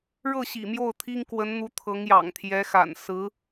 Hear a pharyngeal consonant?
no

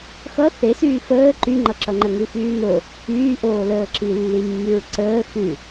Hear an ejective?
no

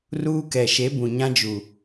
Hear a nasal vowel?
yes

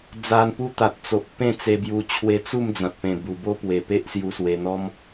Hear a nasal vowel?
yes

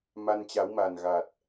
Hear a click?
no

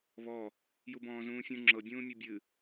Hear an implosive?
no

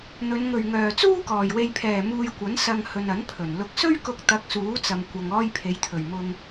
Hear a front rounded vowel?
yes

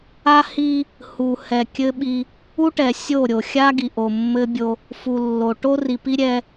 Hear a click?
no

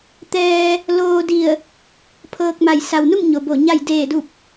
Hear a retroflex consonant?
no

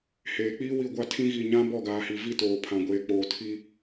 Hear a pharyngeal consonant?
no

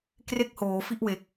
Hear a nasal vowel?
no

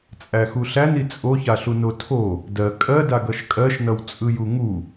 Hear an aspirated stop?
yes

